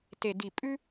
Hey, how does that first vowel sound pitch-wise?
low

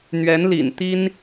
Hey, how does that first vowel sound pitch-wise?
rising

